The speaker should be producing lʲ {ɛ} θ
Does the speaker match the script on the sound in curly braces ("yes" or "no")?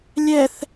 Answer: yes